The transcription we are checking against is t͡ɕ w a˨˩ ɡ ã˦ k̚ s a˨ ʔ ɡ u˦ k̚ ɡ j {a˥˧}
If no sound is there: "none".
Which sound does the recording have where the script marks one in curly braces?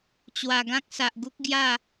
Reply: a˥˧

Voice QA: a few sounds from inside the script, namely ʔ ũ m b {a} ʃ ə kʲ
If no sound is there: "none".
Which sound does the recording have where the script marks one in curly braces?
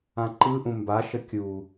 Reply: a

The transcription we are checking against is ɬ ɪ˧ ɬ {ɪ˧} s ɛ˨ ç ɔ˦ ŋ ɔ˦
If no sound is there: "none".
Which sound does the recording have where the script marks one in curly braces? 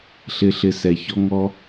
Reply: ɪ˧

